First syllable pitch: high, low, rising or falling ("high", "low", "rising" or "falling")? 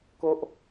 high